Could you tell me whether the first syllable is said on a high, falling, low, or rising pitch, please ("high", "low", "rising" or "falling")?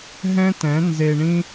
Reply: high